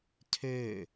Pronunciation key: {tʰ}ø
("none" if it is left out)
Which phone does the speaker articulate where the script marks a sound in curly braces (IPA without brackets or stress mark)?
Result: tʰ